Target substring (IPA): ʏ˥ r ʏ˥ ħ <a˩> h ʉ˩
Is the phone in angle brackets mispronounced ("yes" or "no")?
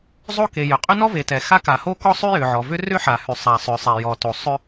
no